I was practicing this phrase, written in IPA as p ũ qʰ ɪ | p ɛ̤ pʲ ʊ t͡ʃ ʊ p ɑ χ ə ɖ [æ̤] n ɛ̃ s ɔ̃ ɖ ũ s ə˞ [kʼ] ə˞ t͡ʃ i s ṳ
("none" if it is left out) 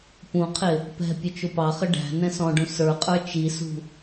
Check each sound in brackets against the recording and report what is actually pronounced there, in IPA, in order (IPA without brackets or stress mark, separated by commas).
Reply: æ̤, qʼ